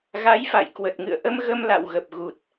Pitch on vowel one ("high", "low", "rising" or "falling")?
rising